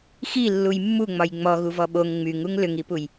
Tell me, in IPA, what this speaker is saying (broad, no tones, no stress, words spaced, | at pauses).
xilːuj mːuŋ͡mɒj ŋ͡mɔɣuvɔ ɓoŋ ŋ͡myŋuŋ lʏŋipuj